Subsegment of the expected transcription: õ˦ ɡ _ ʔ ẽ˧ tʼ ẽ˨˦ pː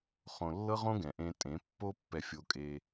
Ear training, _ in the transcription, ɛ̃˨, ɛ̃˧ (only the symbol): ɛ̃˨